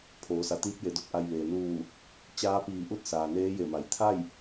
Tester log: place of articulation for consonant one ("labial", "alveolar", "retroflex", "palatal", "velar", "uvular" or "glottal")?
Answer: labial